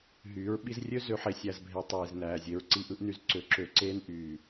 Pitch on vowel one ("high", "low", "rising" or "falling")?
rising